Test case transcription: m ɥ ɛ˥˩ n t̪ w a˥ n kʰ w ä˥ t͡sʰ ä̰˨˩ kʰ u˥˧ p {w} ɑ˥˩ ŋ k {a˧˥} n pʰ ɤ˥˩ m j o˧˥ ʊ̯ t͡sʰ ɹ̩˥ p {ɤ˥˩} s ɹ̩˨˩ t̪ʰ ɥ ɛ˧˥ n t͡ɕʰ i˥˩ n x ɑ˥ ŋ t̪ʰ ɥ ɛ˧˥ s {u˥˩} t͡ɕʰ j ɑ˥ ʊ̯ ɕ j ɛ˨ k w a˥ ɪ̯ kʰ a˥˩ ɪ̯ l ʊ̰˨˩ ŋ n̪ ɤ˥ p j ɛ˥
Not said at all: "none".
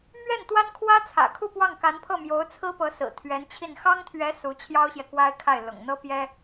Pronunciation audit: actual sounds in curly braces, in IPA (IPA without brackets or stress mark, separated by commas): w, a˧˥, ɤ˧˥, u˧˥